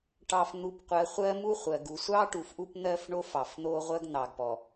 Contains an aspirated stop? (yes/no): no